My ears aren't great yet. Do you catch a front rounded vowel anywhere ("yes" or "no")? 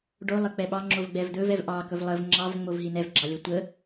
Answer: no